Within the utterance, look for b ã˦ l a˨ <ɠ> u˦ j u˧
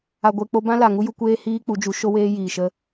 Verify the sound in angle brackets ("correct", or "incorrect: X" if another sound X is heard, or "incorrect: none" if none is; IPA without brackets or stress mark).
incorrect: ŋ